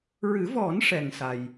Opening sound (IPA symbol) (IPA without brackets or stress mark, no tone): ɹ